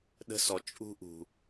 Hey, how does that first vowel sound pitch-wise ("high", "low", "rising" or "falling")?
high